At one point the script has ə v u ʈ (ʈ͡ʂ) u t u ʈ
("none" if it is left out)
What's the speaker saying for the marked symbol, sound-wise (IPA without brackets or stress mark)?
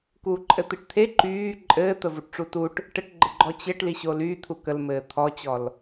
ʈ͡ʂ